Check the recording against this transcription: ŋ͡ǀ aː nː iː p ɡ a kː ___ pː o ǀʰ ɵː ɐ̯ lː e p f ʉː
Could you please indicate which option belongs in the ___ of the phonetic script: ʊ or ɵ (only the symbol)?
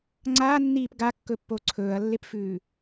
ɵ